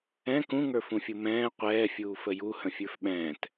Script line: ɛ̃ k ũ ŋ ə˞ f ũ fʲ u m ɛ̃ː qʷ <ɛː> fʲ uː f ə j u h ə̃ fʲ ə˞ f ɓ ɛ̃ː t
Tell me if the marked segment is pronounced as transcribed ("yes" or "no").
yes